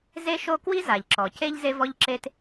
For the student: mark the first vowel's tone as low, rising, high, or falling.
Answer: high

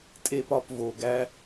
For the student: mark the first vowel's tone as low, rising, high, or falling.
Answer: low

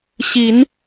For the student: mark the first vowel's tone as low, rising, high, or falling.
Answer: rising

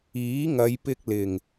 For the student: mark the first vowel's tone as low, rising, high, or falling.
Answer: rising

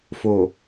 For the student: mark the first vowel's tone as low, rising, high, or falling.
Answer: low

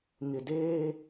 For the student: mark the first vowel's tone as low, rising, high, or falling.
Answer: low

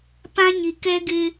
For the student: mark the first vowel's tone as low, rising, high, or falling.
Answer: high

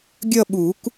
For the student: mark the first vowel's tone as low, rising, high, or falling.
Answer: falling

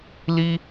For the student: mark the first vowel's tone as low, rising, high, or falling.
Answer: high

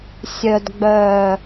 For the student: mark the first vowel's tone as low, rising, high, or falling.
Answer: low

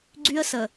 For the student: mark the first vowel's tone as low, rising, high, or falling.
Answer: high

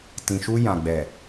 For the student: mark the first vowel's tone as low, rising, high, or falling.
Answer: low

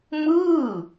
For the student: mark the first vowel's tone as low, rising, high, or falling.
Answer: falling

